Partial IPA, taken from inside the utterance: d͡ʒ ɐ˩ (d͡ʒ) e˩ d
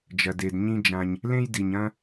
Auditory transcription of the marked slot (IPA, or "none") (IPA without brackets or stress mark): d